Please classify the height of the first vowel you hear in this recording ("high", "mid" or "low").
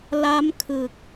low